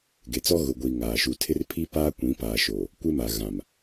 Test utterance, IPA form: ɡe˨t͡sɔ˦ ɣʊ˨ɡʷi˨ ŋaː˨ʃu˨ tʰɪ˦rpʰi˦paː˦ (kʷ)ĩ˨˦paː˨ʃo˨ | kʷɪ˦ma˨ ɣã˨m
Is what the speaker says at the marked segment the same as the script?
yes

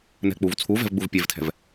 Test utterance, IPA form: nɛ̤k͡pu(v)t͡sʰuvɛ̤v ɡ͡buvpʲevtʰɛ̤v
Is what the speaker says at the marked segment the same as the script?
yes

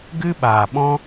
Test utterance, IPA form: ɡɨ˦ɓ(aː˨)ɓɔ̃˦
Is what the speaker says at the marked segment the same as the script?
yes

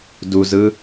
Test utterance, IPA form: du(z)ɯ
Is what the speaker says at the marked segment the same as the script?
yes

